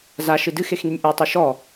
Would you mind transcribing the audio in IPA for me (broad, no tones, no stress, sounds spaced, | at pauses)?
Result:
z a ʃ ɨ d ɨ x e x n i nʲ ʔ u tˤ o ʃ ɔ